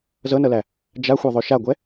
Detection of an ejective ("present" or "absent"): absent